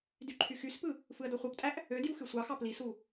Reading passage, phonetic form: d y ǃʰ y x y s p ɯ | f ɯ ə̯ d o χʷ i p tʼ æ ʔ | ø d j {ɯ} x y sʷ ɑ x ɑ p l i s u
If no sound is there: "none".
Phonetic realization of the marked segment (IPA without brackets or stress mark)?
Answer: u